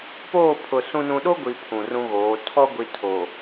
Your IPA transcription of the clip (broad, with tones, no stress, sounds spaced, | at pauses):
p oː˦˨ pʰ ʊ˨ s ũ˨ n ũ˨ ɗ o˦ ɡʷ i˨ pʰ ũ˨ r ũ˦ ɣ oː˨˦ tʰ ɔ˦ ɡʷ i˨ tʰ o˨